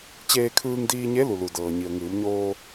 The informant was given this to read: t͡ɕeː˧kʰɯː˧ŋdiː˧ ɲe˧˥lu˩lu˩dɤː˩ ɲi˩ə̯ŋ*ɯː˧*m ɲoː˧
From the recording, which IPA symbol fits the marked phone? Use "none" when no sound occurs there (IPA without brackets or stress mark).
ɯː˩˧